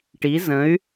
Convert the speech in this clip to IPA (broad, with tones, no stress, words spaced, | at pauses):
ʈi˨˦zə̃˨˦y̯